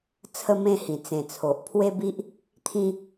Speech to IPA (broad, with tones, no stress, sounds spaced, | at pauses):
t͡sʰ ə˥˧ m ẽ˥˧ h ĩ˨˩ t͡s ẽ˨˩ t͡sʰ o˨ ʔ pʰ w e˦ b i˦ ʔ | t̪ʰ ĩ˧